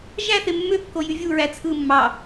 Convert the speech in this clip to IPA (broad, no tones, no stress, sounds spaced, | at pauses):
ʒ æ θ e mː ø kː o j y vʲ u ɹ æ t͡sʰ ɯ mː ɑ